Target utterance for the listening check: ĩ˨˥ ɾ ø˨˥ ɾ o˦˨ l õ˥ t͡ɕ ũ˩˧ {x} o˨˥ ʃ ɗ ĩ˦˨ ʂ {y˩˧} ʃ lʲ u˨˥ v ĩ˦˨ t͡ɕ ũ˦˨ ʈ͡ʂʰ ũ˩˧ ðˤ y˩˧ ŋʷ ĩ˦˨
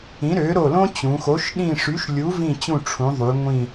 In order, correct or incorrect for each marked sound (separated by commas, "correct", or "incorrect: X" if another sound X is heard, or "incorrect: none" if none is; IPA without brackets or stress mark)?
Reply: correct, incorrect: y˨˥